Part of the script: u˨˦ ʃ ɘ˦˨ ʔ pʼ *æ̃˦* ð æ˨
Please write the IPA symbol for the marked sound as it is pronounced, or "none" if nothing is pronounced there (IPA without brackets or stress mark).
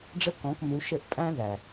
æ̃˦